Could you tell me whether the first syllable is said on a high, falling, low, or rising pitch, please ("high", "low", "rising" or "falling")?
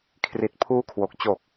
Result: low